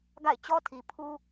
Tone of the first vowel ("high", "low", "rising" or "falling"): falling